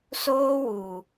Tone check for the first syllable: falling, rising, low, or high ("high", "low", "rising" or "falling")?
high